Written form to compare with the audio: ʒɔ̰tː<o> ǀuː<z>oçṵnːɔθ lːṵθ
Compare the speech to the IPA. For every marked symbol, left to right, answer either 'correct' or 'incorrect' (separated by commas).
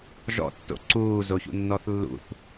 incorrect, correct